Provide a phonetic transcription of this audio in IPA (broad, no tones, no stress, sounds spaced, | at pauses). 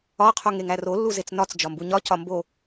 ɒ qʰ o ŋ e ŋ æ r o lː u z e t͡s n ɒ t͡s d͡ʒ ɒ m b u ɲ ɒ c ɒ m b o